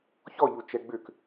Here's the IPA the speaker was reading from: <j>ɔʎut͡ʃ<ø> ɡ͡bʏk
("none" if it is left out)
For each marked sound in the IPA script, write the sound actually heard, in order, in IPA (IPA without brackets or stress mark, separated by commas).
ç, ɛ